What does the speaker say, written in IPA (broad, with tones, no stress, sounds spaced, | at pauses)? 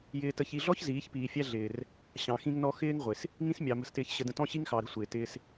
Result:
j ɪː˨ t ə˨ ç i˨ ɮ ɔ˦ ç z iː˨˦ ç p iː˨ fʲ æ˦ ɮ ɪː˨ r | ɕ ɑ̃˨ x ĩ˦ ŋ n ɔ˦ x ɪː˦ ŋ ʁʷ ɪ˨ s | ŋ ĩ˦ s mʲ ɑ˨ m ə̤˨ s t ɪː˨ ç ɕ ə˨ d ə̃˨ t ɔ̃˦ ɕ i˦ ŋ x ɑ˨ ɾ ə̤˦ sʷ ɪː˨ t ɪː˦ s